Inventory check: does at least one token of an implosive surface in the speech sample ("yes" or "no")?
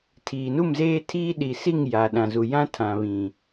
yes